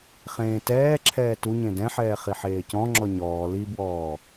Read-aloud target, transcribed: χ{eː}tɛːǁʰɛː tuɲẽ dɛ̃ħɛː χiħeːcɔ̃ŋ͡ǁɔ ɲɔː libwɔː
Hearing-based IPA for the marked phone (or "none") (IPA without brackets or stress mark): ẽː